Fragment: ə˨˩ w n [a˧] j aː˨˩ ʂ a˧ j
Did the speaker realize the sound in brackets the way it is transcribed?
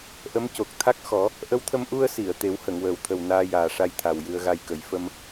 no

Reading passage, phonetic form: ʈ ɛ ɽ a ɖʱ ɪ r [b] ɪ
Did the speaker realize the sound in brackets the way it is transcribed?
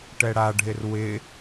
no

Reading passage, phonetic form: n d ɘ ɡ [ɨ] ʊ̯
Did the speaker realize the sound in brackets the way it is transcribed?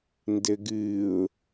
yes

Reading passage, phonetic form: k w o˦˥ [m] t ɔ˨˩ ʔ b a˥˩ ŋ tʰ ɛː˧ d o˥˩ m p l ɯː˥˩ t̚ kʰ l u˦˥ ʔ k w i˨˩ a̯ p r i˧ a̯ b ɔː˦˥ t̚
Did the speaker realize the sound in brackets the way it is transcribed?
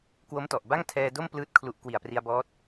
yes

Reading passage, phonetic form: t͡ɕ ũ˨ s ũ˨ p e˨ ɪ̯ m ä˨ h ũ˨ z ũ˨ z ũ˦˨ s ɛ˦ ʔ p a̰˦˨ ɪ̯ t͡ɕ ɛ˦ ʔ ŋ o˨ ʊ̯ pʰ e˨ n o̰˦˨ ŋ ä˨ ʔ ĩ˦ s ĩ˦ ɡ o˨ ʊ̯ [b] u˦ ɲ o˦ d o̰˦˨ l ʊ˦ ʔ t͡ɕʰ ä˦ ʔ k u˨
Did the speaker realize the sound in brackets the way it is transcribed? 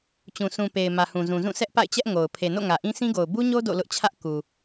yes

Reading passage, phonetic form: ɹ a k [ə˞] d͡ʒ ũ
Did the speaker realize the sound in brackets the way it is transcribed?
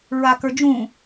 yes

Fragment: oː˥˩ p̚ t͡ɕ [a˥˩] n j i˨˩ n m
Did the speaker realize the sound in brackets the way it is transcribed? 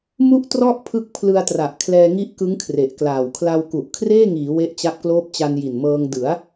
no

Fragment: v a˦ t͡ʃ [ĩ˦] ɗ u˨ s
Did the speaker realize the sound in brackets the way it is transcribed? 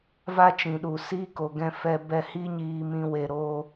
no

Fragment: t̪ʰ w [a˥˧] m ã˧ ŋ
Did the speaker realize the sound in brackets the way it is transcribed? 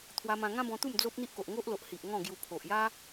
no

